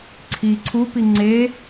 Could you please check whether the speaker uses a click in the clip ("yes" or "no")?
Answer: yes